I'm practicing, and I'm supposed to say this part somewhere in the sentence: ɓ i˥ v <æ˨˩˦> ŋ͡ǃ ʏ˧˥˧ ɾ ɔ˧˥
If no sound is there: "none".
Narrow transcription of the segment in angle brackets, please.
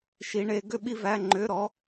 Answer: æ˧˥˧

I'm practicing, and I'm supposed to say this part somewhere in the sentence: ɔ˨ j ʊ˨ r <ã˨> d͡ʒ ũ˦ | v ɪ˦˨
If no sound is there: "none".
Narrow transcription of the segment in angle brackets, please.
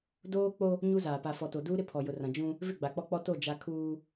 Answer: ã˨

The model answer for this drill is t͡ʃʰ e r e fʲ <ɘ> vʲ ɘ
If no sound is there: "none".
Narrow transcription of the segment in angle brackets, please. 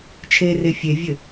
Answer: e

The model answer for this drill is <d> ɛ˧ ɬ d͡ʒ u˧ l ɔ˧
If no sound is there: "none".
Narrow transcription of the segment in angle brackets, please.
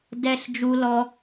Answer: d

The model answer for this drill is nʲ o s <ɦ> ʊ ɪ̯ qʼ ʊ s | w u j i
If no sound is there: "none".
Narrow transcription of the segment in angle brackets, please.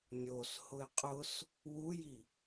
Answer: h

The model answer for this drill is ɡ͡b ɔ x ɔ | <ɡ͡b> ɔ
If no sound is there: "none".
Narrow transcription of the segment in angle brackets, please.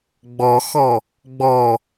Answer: ɡ͡b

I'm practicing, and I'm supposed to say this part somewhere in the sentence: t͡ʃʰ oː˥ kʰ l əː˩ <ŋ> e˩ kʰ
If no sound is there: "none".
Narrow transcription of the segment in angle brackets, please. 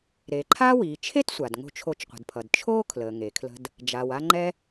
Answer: ŋ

